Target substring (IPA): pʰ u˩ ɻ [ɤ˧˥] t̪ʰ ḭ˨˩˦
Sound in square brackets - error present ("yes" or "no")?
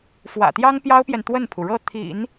yes